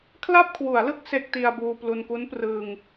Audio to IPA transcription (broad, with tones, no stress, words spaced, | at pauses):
kʰla˥˩p̚kʰwu˩˦a̯lɯ˦˥k̚ se˦˥k̚ ti˧a̯buː˧plu˧n ku˦˥nprɯː˧ŋ